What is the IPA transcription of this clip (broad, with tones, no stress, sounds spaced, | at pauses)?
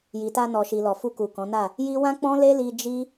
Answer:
j i˨ t a˧ n ɔ˨ ʃ i˨ l ɔ˨ f u˧ k u˨ k ɔ̃˨˦ n a˦˨ | j i˦ w ã˦ k͡p ɔ̃˦ l e˦ l i˧ d͡ʒ i˦